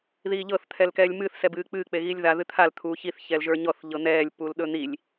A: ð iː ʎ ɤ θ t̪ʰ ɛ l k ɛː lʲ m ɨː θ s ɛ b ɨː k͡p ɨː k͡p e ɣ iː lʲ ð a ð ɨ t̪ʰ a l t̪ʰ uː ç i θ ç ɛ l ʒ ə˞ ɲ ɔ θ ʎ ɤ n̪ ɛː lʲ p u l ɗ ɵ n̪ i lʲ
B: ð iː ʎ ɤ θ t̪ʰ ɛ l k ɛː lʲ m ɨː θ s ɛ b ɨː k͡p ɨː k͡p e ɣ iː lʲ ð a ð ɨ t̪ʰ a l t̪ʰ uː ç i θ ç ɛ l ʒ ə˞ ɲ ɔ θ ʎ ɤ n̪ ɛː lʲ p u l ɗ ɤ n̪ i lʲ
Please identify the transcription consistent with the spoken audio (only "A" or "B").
A